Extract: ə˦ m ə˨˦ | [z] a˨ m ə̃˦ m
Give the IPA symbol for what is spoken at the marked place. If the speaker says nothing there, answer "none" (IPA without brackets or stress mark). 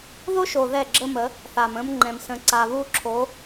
θ